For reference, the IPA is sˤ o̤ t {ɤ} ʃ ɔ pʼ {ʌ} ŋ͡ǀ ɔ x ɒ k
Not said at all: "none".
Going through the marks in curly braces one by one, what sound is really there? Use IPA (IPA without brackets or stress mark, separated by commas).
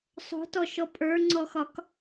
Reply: ɔ, ə˞